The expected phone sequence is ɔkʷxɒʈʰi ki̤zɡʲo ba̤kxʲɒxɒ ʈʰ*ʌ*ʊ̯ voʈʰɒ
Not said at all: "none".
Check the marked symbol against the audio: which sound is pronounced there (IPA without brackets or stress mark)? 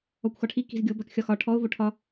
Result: ɔ